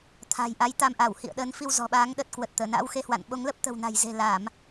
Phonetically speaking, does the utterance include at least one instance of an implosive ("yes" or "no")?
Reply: yes